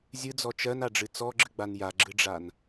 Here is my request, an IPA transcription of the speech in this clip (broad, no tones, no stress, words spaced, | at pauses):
zʲɨd͡zɔ t͡ʃɜnaɖ͡ʐɨ t͡sɔɡ͡ǁɨɡ͡ban jaɡ͡ǁɨɖ͡ʐan